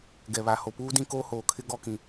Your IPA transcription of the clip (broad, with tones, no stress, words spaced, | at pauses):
ɡɛ˨βa˨ ho˨puː˦dĩ˦ koː˦hoː˨kʰɪ˦ ɡɔ˦kĩ˨